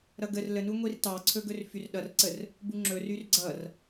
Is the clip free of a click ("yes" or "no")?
no